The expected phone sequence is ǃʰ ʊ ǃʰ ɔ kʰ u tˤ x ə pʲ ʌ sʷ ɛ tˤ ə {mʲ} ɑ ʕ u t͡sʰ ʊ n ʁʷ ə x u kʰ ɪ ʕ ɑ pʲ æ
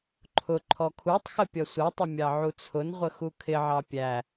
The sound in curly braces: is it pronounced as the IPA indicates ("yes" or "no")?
yes